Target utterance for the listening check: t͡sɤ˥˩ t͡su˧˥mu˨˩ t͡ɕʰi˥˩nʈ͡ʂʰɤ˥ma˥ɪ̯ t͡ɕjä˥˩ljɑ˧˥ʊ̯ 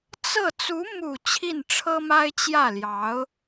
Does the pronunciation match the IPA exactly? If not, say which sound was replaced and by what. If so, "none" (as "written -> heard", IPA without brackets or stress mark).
none